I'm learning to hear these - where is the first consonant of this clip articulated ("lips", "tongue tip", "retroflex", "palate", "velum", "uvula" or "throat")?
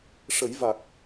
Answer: retroflex